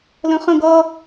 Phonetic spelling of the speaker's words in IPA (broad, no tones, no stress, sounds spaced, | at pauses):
l ə̃ χ ə̃ ɡ ʌ